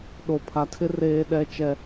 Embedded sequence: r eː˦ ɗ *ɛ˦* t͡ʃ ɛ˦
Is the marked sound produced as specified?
yes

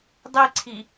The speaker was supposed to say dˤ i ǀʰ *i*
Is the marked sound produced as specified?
yes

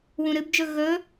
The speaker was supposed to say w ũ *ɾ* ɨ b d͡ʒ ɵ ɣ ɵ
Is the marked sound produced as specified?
yes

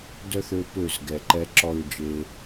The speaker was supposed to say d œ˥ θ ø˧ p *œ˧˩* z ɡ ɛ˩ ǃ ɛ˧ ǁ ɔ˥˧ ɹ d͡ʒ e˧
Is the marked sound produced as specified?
no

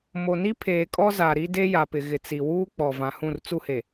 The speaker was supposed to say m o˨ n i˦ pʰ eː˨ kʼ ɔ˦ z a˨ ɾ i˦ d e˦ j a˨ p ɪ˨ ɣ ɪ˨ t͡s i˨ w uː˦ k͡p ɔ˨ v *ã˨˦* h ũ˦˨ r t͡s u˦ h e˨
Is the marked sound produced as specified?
no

